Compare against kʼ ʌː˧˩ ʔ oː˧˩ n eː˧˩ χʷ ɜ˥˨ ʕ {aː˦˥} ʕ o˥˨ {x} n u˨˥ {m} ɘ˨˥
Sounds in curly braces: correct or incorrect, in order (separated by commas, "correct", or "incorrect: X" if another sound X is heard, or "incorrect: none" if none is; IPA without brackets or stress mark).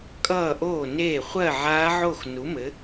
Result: correct, correct, correct